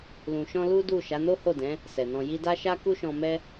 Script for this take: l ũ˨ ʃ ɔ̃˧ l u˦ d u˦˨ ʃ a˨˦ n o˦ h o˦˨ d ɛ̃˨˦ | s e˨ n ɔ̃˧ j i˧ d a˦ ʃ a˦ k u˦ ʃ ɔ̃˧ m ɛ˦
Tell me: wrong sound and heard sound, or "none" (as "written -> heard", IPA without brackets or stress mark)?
e˨ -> ɛ˨